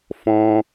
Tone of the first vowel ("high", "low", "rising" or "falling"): high